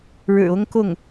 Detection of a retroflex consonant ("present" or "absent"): present